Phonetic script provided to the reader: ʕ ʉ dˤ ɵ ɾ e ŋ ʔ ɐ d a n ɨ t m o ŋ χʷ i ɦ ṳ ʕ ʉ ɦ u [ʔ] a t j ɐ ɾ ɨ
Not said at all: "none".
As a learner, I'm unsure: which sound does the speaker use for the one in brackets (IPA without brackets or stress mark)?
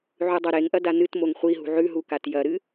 k